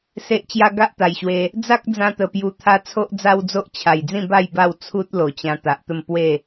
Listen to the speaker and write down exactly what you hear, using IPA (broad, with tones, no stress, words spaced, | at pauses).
se˨ʔt͡ɕja˧ ɡa˦ʔt̪a˨˩jɕwe˧ | d͡za˦k̚d͡zã˧ t̪ə˨˩ pju˨˩t̪ʰa˧ t͡sʰo˦ʔd͡za˦wd͡zo˦ʔ t͡ɕʰa˨˩jd͡zĩ˥˧ba˥˧j ba˥˧wt͡sʰu˦t̚ lo˨˩t͡ɕã˧ t̪a˨ʔt̪ə˥˧m pwe˥˧